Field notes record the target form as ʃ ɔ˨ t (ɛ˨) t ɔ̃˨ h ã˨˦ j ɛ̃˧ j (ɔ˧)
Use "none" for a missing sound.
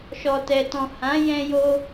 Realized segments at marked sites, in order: ɛ˨, o˧

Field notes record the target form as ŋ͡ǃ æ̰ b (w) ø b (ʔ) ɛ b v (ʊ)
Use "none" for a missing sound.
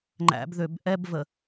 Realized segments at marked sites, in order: ð, ʔ, ə

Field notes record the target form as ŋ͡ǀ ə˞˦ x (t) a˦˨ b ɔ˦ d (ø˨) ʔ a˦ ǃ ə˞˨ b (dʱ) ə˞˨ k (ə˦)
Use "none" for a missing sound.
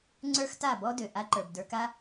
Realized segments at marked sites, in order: t, ø˨, d, a˦

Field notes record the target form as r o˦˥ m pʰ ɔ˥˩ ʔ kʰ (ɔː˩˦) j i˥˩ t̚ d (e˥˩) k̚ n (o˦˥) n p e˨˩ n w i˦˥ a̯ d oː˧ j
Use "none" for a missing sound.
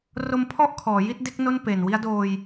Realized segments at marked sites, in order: ɔː˩˦, e˥˩, o˥˩

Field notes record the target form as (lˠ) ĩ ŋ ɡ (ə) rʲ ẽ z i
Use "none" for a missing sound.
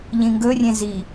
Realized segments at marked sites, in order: ʎ, ɵ

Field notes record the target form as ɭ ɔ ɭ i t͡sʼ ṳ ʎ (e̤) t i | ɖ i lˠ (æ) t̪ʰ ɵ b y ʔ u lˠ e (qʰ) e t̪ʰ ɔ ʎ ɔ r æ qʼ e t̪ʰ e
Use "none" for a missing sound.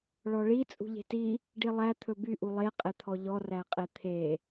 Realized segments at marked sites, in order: e̤, æ, qʼ

